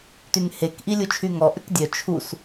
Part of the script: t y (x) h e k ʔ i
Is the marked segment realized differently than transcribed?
yes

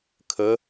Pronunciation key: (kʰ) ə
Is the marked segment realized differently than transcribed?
no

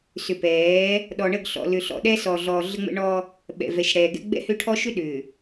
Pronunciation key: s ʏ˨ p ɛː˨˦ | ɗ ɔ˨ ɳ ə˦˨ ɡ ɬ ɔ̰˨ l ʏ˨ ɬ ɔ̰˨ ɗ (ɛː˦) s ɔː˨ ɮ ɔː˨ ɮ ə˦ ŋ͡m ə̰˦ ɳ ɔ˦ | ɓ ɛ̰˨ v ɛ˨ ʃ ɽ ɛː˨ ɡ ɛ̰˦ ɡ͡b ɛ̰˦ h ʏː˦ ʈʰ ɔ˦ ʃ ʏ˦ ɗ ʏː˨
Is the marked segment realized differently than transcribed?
no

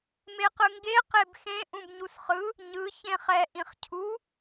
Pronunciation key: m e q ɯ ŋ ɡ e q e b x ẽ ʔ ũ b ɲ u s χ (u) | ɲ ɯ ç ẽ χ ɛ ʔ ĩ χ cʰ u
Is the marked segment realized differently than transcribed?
yes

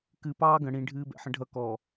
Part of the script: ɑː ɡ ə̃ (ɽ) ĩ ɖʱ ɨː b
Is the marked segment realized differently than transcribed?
no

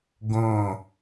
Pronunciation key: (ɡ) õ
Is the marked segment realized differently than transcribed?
no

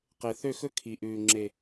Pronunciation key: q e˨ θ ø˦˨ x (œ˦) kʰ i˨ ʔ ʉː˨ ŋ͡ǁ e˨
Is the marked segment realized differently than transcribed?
yes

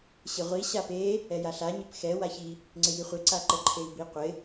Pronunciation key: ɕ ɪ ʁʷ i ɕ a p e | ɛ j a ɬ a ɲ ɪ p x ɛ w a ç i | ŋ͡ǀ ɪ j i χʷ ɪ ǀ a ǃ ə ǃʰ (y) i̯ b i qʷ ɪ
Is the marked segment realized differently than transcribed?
yes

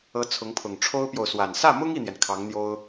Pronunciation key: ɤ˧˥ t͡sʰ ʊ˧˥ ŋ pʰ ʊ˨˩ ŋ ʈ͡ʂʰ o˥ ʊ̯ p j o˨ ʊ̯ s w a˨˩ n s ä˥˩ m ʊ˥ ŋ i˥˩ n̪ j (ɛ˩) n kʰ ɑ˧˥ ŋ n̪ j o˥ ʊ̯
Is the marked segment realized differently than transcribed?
no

